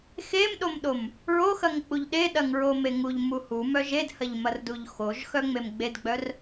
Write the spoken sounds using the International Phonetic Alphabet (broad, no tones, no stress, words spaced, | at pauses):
xemɗomɗom | ɹoxɐŋk͡puʎ ɗeɗɐŋɹome ŋuʎmu humœ ʒedhɐʎmɐrduʎ xoʒxœŋ͡mem ɡ͡bedɡ͡bœr